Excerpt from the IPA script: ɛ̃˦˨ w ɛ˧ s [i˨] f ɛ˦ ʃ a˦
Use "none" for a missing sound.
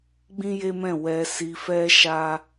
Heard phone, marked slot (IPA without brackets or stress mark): i˧